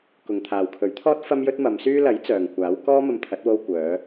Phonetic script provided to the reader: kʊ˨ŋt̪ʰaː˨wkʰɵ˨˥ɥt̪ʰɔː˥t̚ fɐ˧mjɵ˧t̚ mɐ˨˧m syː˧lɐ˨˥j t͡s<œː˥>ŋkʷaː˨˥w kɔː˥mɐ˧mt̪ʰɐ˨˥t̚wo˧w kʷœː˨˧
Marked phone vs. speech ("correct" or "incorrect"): incorrect